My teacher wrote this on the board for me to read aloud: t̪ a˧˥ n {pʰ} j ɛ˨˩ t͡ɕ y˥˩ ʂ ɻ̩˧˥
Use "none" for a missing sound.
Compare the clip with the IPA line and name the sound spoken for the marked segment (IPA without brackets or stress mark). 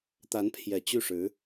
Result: pʰ